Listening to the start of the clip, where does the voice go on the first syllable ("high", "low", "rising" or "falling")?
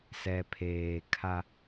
low